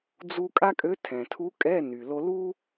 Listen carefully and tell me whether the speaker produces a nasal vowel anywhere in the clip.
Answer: yes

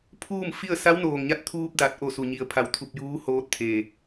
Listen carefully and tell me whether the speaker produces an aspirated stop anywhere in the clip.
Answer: yes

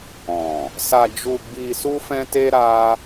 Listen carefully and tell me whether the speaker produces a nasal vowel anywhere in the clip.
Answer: yes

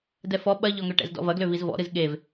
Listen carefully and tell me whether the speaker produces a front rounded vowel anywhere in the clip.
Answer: yes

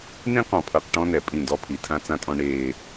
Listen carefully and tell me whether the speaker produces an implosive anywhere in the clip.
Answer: no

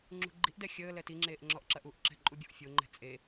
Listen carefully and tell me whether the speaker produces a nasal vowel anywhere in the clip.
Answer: no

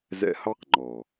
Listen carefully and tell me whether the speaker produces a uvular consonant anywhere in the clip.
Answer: yes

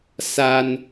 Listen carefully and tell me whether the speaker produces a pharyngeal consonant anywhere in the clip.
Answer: no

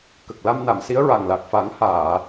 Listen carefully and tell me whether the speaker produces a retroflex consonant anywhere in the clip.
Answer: no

